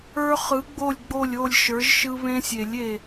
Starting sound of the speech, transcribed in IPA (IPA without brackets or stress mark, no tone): ə˞